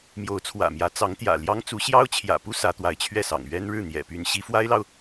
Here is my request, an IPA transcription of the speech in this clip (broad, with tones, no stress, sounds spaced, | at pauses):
m j o˧˥ ʊ̯ t͡sʰ w ä̰˨˩ m j ä˧˥ t͡s ɑ˧˥ ŋ t̪ j ä̰˨˩ l j ɑ˥ ŋ t͡s u˧˥ ɕ j ɑ˥ ʊ̯ t͡ɕʰ j ä̰˨˩ p u˥ s ä˧˥ t̪ w a˧˥ ɪ̯ t͡ɕʰ ɥ ɛ˥˩ s ɑ̰˨˩ ŋ ɥ ɛ˥ n ɻ ɻ̩˥˩ n̪ j ɛ̰˨˩ p y˧˥ n ɕ i˧˥ f w a˥ ɪ̯ l ɑ˨ ʊ̯